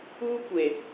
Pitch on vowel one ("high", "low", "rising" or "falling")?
high